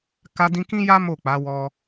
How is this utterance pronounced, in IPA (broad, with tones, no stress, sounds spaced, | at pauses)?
k a˧ d ĩ˧ k ĩ˦ j a˦ m o˦˨ k͡p a˨˦ w ɔ˧